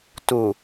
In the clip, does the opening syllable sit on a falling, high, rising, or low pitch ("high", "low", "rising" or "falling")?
low